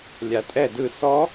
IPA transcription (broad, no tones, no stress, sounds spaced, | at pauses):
lʲ a tʼ ɛ d ɯ s ɔ